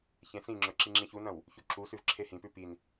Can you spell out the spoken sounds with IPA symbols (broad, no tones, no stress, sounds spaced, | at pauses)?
ç ẽ s ĩ ŋ͡ǁ ɵ ǁ i ŋ͡ǁ ĩ ç u n ɐ̃ w | ç u ǁ u s ʉ v ǁʰ e h ĩ p ʉ p i n